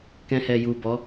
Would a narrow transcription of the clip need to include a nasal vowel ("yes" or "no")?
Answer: yes